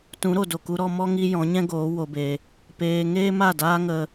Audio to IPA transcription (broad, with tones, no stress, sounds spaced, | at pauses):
t ũ˨˦ ɾ o˨ d o˨ k u˧ ɾ ɔ˧ m ɔ˦ ŋ i˦ j ɔ̃˨˦ ɲ ɛ̃˦ ɡ oː˨˦ w o˧ b e˧ | p eː˧ ŋ eː˦ m a˦˨ d aː˦ ŋ ə˧